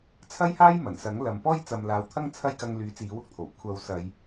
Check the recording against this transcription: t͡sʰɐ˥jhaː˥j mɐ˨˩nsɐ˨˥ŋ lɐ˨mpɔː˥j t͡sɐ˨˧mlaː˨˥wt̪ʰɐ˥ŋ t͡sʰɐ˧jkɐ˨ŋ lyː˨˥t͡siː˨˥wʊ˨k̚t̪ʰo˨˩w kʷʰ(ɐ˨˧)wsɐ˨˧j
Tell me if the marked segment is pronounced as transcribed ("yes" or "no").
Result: yes